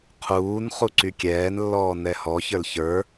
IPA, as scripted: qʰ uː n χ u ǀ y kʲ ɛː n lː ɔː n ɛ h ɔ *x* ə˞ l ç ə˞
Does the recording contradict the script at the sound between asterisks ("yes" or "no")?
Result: yes